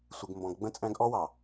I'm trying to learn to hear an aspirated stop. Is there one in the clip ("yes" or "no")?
no